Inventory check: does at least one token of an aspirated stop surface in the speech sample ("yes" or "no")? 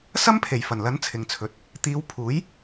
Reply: yes